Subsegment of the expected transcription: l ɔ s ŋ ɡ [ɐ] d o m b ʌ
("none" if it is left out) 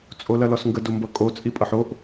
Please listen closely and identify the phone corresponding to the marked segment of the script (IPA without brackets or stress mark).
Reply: ə